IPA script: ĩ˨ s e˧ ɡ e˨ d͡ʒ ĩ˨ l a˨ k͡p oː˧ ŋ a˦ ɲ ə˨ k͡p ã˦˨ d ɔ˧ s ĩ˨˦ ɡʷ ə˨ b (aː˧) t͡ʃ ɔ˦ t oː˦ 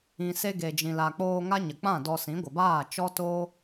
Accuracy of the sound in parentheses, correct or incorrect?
incorrect